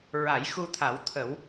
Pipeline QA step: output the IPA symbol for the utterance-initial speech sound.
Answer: ɹ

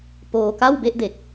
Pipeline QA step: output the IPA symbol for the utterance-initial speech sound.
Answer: p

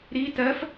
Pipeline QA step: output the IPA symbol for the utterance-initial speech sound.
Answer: ɾ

